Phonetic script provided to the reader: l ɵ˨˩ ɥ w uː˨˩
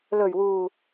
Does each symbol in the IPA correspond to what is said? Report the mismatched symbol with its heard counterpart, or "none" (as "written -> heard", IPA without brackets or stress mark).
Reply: none